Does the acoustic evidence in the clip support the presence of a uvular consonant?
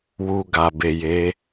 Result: no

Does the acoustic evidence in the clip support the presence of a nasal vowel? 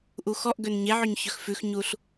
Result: no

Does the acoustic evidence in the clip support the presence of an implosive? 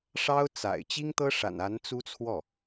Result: no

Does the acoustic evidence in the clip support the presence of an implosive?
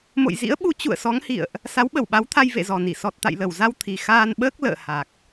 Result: yes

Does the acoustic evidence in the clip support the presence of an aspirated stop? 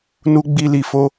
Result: no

